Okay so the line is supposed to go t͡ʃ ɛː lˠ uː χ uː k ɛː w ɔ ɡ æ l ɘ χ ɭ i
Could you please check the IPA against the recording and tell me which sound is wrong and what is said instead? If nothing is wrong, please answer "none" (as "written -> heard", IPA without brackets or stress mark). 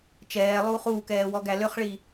ɘ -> ø